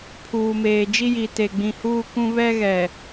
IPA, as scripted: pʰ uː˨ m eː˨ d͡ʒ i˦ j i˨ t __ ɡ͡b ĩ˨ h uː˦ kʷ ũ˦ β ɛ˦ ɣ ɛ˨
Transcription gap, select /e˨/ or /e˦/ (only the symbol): e˨